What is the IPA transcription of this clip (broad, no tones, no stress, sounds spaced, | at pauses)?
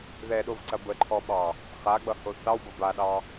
ð ɛ ɗ o v ǀ ɐ b ə ǃʰ ɔ ɓ ɑ | χ a ɡ͡b ʌ h o θ ɑ w b ʌ b a ɗ ɑ